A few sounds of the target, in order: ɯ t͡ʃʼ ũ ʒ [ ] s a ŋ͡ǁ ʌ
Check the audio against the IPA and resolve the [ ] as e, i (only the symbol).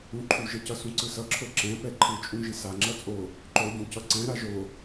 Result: i